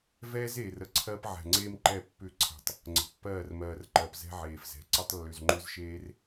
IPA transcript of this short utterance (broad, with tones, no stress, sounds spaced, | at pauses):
v ɛː˦ z e˨ r ə˨ ǀʰ ɜ˦ p ʕ ɛ̤˨ ŋ͡ǀ eː˦ m ǃ ɛ˦˨ pː ʏ˦˨ ǀʰ ɛ̤˨ tˤ | ŋ͡ǀ ə̤˨ pː ɜː˦˨ r m ɜː˨ r ǃ ɜ˨ p z ɛ̤˦ ʕ eː˨ f z ɛ̤˨ ǀ ə˦ tˤ lː ʏ˨ z ŋ͡ǃ ʏ˦ z ʃ eː˦ r